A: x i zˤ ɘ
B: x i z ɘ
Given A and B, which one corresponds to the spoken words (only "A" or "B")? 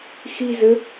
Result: B